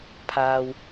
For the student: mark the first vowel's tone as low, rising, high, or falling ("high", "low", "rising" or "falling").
low